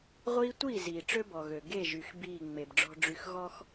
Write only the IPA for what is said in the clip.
ʁʷ iː˦ tʷ iː˦˨ z iː˨ ʈ͡ʂ ø˦ b ɔ˨ ɣ ø˨ ɡ e˦˨ ʒ y˨ x b iː˦˨ ŋ͡m e˨ b ɖ͡ʐ ɔ̤˦ ɖ͡ʐ y˦ x ɣ ɔ˦ x

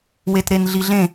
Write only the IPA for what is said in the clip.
w e t ɾ e n ɮ i ɮ ẽ

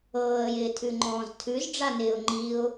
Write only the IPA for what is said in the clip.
ɤː ə̯ j ɪː tʰ ʉ ŋ͡ǃ ɔ̃ː z tʰ ʉ z ɖ͡ʐ a n ɪː ʊ̯ ŋ͡ǃ i ʊ̯

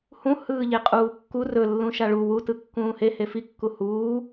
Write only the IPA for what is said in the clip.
h ũ h ɯː ʎ e qʼ uː kː u r ɵ lː ũ ʃ a ɭ u w u t ɯ kː ũː h e h e f i kː u h uː

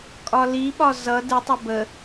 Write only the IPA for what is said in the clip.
kʼ ɒ l i ɓ ɒ z ʌ d ɨ tˤ ə b ə

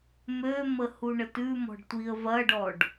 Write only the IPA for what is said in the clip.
m ø m ə h u ɳ ə t ʉ m ɔ̤ ɖ tʷ i ə̯ v ɐ ɖ ɔ ɖ

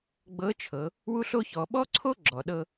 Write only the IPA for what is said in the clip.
ɡ͡b ɤ˧˥ t͡ʃʰ ɤ˩˧ | w u˥ ɬ o˥ ç ɔ˩˧ ɓ ɔ˥ ǀʰ o˥ ɡ͡ǁ ɔ˩ ɗ ɤ˧

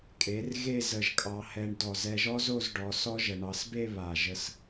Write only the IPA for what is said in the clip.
kʼ e˩˧ r ɣ e˥˧ z ə˧˩ ʒ kʼ ɑ˧ h ɛ˧ ɳ d ɔ˧˩ z ɛ˧ ʒ ɔ˥ z o˥˧ z ɖ ɔ˩˧ s ɔ˥ ʒ ə˩˧ ɳ ɑ˩˧ s b e˥˧ β a˧˩ ʒ ə˥˧ s

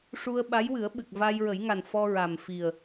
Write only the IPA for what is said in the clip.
ʂ u˧ ə̯ ɓ a˧˥ j w ɨ˨˩˦ ə̯ ɓ ɨ˨˩ k̚ v a˧ j ɹ ə˨˩˦ j ŋ a˨˩ n f ɔ˧ ɹ a˨˩ m f i˨˩ ə̯

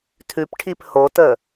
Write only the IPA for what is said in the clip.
tʰ ʉ p ʈʰ i p h o t ə

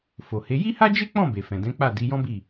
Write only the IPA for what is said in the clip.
f o˨ h e˨˦ j i˦ h a˦ d͡ʒ e˦ k͡p ɔ̃˦˨ b e˨ f ɛ̃˨ d ɛ̃˨˦ k͡p a˦˨ d i˨˦ j ɔ̃˦ b i˦˨

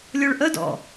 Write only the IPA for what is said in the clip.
lʲ o ɭ ʔ ə d ɔ̰

